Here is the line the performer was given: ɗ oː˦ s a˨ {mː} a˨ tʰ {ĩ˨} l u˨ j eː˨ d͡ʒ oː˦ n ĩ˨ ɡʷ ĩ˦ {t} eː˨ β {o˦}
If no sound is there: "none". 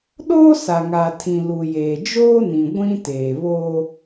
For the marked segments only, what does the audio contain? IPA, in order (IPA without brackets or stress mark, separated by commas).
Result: ŋ, ĩ˨, t, o˦